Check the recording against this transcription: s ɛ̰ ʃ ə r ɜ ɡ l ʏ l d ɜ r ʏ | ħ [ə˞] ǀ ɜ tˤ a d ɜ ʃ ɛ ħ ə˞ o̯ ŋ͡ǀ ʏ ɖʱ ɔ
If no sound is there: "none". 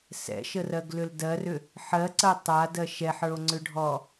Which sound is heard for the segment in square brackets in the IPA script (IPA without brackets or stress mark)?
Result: ɜ